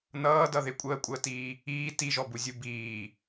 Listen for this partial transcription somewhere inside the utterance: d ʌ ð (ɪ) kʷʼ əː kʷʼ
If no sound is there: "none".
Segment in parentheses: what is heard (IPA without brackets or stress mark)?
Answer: ɪ